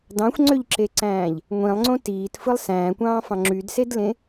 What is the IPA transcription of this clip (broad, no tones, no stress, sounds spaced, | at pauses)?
d ɑ̃ xʷ ŋ͡ǀ ø ʎ ǁ e ǀ æ̃ː ʎ | ŋʷ ĩ lˠ ŋ͡ǀ õ t iː t f ɯ lˠ s æ̃ː kʷ ɑ̃ː f ɑ̃ ŋ͡ǁ y d s e d l ẽ